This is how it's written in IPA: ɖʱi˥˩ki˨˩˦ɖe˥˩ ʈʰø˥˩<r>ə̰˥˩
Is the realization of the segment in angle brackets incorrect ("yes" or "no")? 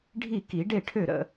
yes